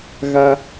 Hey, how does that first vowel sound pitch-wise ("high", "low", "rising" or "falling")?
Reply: high